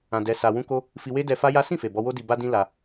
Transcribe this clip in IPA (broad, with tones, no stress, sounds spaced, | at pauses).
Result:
ã˧ d ɛ˧ s a˧ w ũ˦ k o˦ | f i˧ w e˦ d ɛ˧ f a˦ j a˦ s ĩ˦˨ f e˨ b ɔ˧ w o˦ d i˧ b a˧ d ĩ˧ l a˧